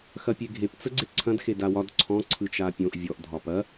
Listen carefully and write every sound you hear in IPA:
x ɐ pʲ e ɡʱ e p t͡s ə ɡ͡ǀ e ǀʰ ɐ̃ d x e d a w ɒ d ǀʰ ɔ̃ ǀʰ ɯ t͡ʃ a pʲ õ ʔ vʲ ɔ ʔ dʱ ɒ p ɐ

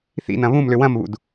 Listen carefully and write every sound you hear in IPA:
θ ḭ n ɐ̃ β ũ m l ʏ w ɐ̃ m β ṵ d

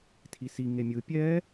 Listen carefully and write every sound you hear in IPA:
tʰ i s i ŋ e mʲ ɯ pʲ ɛ

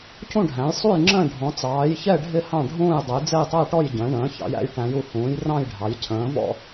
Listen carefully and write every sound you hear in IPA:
c ũ˦˨ ɖʱ æ̃˩˧ j sˤ u˦˨ j ŋ͡ǁ ə̃ː˦˨ ɖʱ ɔ̃˩˧ t͡s ɑː˩˧ j ç ɛ˦˨ ɖʱ ɪ˦˨ h ɑ̃˦˨ ɖʱ ũː˦˨ j dˤ ə˩˧ j d͡z ɛ˦˨ j tˤ æ˦˨ ʈ ɔ˦˨ j ɟ ə̃ː˩˧ ɳ ə̃ː˩˧ ç ɑ̰˩˧ j æ̰˩˧ j ʈ æ̃˩˧ j u˩˧ h ũː˩˧ j r ɑ̃˦˨ j ɖʱ ɑ˩˧ j cʰ ə̃ː˩˧ v ɔ̰˦˨

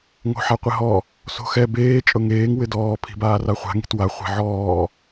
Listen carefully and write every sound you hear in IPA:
ŋ o̤ ħ a qʷ ɪ ɦ ɔ | s o̤ x ɛ b eː t͡ʃʼ ʊ ŋ eː ŋ w ɪ d ɔː pʰ i̤ b aː r a χʷ a̤ ŋ i̤ t w a χʷ ɛ̤ ʕ ɔː

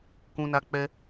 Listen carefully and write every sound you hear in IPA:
k ũ˦ n a˦ k͡p ɛ˦

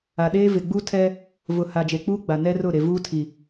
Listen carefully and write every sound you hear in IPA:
a˨ ɗ eː˦ v ɪ˨ ɡ͡b u˦ tʰ ɛ˦ | v ʊ˨ h a˨ d͡ʒ e˨ k͡p uː˦ ɡ͡b a˨ n ɛ˦ r ʊ˦˨ ɾ e˨ v uː˦ tʰ i˨

